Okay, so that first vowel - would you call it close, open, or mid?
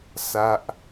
open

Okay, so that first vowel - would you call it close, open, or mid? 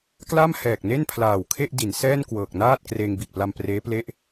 open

